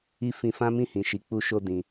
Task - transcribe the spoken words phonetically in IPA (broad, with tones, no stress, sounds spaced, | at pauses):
i˦ f ĩ˧ f ã˦ m ĩ˦˨ h ĩ˨ ʃ i˨˦ k͡p u˧ ʃ o˧ d ĩ˧